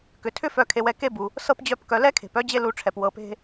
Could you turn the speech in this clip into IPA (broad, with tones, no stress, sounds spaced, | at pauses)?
k ʏ˩ tʰ ʏ˦ f œ˨ kʰ e˨ w ɛ˨ k e˥ b u˩ | s ɤ˥ p d͡ʑ œ˦ p k œ˨ l ɛ˥ kʰ e̤˩ p œ˥ d͡ʑ e˦ l u˨ ʈ͡ʂʰ ɛ˩ p w ɤ˨ p e̤˦